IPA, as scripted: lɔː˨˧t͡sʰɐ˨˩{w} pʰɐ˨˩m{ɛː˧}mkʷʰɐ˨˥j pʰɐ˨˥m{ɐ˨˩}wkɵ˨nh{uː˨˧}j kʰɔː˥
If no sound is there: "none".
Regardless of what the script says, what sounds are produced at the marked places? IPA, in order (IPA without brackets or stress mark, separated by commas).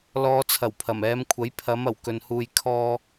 w, ɛː˨˧, ɐ˨˩, uː˧